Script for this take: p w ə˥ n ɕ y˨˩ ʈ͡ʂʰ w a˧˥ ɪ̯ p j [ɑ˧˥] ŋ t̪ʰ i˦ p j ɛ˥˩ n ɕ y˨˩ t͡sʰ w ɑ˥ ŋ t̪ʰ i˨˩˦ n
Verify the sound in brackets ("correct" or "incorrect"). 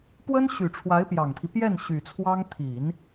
incorrect